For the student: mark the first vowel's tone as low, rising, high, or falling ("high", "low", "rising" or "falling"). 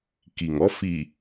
low